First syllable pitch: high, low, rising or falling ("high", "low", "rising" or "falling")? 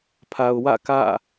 low